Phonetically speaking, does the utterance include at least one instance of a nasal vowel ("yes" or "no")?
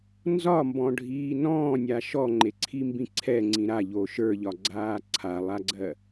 yes